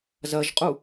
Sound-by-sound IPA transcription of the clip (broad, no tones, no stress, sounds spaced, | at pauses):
z ɐ ʒ qʼ u